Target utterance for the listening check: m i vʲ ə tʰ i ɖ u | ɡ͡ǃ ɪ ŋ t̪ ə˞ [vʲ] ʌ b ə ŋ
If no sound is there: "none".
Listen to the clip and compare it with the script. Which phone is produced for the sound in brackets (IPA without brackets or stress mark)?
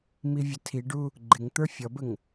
fʲ